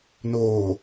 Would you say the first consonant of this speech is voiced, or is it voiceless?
voiced